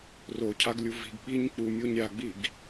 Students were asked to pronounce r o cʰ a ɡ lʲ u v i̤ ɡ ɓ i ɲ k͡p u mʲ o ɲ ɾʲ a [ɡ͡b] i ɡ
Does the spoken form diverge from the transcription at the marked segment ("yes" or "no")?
no